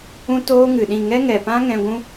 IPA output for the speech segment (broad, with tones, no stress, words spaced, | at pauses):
ũ˦toː˦ŋɨ˨ɗĩ˦˨ ŋɛ˦ŋɛ˨pã˦ ŋɛ̃˧ ɡʷũ˦